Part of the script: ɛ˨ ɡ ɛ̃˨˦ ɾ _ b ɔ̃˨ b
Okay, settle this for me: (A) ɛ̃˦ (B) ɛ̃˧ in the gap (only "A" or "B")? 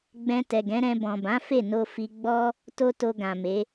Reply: B